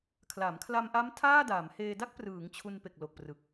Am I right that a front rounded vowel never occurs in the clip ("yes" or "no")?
yes